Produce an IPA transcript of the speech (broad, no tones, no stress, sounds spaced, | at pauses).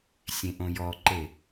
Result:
sʲ ẽ ʔ õ j ɔ ǃ e